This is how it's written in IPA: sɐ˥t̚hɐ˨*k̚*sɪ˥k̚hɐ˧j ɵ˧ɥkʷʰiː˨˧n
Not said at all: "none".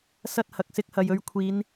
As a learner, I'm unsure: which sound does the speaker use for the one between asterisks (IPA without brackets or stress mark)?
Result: k̚